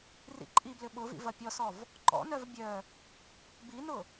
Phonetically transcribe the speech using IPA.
rḭǃʼiblʏ ɓʊvḭ vɐpʲɔsɔv | ǃɔ̰nœv bʲœ | binʊ

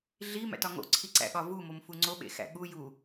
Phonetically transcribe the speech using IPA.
ɮi mæ̰tɒŋo̰ ǀʰiǀæ̰ɠɒvu momfuŋ͡ǀo ɓḛxæ̰ɠu ju

